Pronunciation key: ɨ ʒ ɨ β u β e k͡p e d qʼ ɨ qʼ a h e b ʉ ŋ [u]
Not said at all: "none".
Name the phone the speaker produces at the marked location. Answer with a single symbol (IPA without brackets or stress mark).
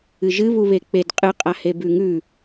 ʉ